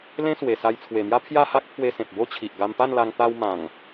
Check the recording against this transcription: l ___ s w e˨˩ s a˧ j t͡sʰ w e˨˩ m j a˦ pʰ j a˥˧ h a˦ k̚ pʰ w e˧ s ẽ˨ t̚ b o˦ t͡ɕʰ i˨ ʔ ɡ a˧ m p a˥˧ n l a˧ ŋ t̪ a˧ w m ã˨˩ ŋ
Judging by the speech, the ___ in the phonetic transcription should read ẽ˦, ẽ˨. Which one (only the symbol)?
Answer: ẽ˦